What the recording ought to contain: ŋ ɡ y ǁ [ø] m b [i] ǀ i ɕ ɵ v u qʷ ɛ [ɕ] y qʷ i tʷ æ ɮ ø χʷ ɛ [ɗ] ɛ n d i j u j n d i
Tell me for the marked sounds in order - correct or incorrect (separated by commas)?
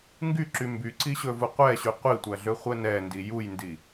incorrect, incorrect, correct, incorrect